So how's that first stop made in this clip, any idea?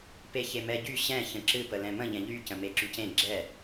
plain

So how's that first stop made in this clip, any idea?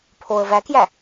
aspirated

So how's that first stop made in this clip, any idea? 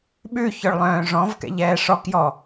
implosive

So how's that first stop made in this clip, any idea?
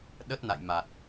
implosive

